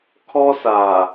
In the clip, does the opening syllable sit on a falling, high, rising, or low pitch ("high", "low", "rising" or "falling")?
high